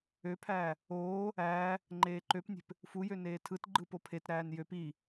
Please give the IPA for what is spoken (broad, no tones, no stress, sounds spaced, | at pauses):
ø pʰ æː | oː | æː | ŋ͡ǃ eː ǃ ø p nʲ e̤ p | f u j ø n eː tʰ ɯ t ɡ͡ǃ ɯ p o pʰ e t ɾ æː n j ø p i